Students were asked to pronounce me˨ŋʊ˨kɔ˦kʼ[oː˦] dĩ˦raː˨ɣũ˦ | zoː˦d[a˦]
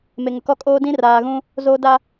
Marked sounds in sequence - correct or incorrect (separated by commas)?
correct, correct